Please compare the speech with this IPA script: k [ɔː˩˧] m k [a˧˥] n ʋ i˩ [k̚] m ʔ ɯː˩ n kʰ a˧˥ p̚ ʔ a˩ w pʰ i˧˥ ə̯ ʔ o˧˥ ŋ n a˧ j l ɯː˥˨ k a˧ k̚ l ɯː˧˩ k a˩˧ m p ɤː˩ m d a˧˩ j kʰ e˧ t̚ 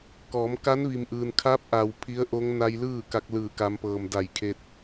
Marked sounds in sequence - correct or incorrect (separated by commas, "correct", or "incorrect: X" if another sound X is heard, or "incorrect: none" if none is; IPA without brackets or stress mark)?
correct, correct, incorrect: none